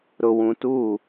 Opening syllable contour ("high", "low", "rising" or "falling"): low